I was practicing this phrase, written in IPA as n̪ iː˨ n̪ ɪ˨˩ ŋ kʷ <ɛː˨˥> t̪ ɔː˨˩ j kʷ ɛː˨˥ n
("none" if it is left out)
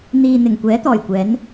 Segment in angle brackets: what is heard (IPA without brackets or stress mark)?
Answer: ɛː˨˥